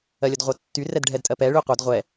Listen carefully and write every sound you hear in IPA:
ɜ lʲ ə d ʁʷ œ tː y r ɛ d ɖʱ ɛ d tʼ ɜ p ɛ ɭ y qʷ œ d ʁʷ ɛ

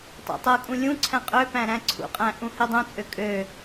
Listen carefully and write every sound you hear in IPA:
tˤ æ̰ tˤ ɤ kʼ ũ lʲ ũ ǀʰ æ̃ qʼ ø p æ̃ ɾ æ̃ ǀʰ ṵ qʼ æ̃ ʔ ũ h i dˤ ũ t͡sʼ ø kʼ ø

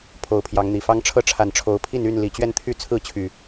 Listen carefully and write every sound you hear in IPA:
pʰ o˨˦ ʊ̯ pʰ j ɑ˨˦ ŋ n̪ i˨˩ f ɑ˦ ŋ ʈ͡ʂʰ ɤ˦ ʈ͡ʂʰ a˨˦ n ʈ͡ʂʰ o˨˦ ʊ̯ pʰ i˥˨ n y˥˨ n l i˨˩ t͡ɕ ɥ ɛ˥˨ n t̪ʰ y˥˨ t͡sʰ ɹ̩˥˨ t͡ɕʰ y˨˩

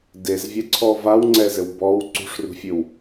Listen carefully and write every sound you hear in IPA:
d e z vʲ ɛ ǀʰ ɔ v a w ŋ͡ǀ ɛ z ɘ w b ɔ w ǀ ṳ ʂ r ṳ fʲ ɨ w

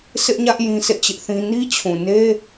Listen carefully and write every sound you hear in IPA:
s ɪ˦ ʔ ɲ ä˦ ʔ j ĩ˦ s ḛ˦˨ t͡ɕ ɪ˦ ʔ θ ĩ˦ n i˦ t͡ɕʰ ũ˨ n e˦

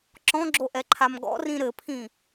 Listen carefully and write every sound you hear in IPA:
ǁ ɔ̃ ɡ͡ǁ o ʔ ɛ ǃʰ a m ɡ ɔ̰ r ĩ ɾ ɘ pʰ ĩ

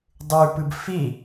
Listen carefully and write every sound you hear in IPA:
dˤ ʉ p ɨ b f i

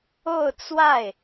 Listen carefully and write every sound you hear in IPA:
o˥˧ ʊ̯ t͡s w a˥˩ ɪ̯

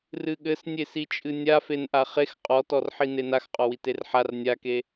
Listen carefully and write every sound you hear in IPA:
r ɨ ɠ ɘ s nʲ e s i t͡ʃʼ ɨ nʲ a f e n ʔ a χ e x qʼ ɔ t ɔ r ħ i n e n a x qʼ ɔ w i t e r ħ a r nʲ a k e

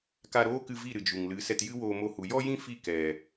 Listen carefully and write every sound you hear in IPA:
k a˧ ɾ oː˦ k ɨ˧ v i˦˨ ɾ ɨ˨ d͡ʒ u˨ ŋ l ɨ˨˦ s ɛ˧ t j ɨ˦ w oː˧ m o˧ h u˨ j ɔ˦ j ĩ˦ f i˦˨ k ɛ˨

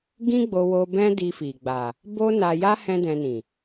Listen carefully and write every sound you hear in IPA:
ɡ ĩ˦ ɡ͡b o˧ w o˧ b ɛ̃˦ d i˧ f i˨ ɡ͡b a˨ | b o˦ n a˧ j a˦ h ɛ̃˦ d ɛ̃˧ n ĩ˨

